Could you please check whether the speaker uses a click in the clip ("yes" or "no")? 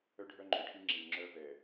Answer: yes